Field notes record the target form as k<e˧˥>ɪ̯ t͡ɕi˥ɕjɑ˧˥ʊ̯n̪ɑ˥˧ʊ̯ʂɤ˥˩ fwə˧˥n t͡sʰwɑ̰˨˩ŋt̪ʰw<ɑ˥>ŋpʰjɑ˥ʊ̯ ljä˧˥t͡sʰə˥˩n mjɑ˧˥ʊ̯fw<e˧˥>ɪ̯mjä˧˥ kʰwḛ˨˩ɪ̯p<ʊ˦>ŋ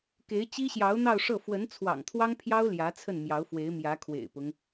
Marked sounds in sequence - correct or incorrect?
correct, correct, correct, correct

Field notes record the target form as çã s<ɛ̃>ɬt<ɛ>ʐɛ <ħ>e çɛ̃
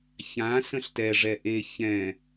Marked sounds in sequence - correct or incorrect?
incorrect, correct, incorrect

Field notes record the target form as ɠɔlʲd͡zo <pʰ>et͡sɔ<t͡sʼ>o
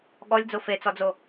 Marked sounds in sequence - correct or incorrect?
incorrect, incorrect

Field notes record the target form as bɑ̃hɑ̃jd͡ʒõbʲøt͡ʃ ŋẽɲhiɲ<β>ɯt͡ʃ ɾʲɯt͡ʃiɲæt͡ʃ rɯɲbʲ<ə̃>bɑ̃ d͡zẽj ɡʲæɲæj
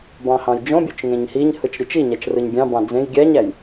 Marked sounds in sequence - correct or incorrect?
incorrect, incorrect

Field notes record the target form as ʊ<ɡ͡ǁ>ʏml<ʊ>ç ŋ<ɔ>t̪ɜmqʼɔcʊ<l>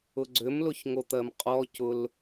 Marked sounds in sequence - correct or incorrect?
incorrect, correct, incorrect, correct

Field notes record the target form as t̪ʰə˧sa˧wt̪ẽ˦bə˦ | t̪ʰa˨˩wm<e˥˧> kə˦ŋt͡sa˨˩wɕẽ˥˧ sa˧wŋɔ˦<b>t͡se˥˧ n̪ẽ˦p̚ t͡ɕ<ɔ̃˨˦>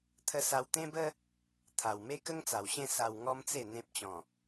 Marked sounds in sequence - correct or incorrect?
incorrect, incorrect, incorrect

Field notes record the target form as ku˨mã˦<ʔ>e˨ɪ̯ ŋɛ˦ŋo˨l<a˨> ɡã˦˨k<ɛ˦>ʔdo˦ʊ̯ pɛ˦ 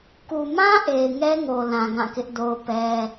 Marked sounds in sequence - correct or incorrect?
correct, incorrect, incorrect

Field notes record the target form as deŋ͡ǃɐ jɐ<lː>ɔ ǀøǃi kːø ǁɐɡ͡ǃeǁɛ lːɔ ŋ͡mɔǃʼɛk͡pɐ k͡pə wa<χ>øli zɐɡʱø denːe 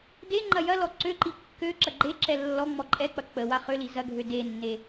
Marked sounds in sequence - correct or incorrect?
incorrect, correct

